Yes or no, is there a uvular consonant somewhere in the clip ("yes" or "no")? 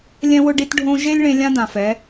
no